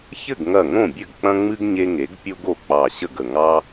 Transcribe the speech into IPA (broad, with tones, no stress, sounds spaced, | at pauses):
ç ɘ˥˩ ɡ ŋ ɐ˧˩ ŋ õ˥˩ bʲ ɘ˥˩ ɡ k͡p ɐ̃˦ ŋ͡m ɨ˦ ɡ ɲ e˦ ŋ e˩˥ ɡ pʲ o˦ ɡ o˧˩ k͡p ɑ˧˩ ɕ ə˥˩ ɡ ə˧˩ ŋ ɑ˦